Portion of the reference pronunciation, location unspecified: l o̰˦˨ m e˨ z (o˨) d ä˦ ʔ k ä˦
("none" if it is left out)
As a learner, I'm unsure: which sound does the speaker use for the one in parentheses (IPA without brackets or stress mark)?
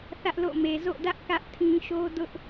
o̰˦˨